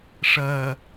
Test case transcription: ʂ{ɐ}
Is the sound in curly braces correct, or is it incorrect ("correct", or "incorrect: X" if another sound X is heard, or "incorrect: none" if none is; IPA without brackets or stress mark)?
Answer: incorrect: ɐː